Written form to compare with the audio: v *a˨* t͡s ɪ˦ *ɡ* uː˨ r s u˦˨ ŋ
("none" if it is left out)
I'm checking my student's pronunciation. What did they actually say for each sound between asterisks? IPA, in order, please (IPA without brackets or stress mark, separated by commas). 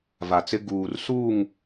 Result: a˨, ɡ